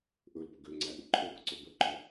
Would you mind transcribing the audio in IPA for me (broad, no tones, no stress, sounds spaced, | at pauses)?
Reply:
ʔ ɵ l p ə ɡ ø ŋ͡ǀ æ ʔ u ǃʰ ɘ b ə ǀ ɵ b ə ǃ ɔ